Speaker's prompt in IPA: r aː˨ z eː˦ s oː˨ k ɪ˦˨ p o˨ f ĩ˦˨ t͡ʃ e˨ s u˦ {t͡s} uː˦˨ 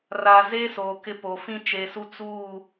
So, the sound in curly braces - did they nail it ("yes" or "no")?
yes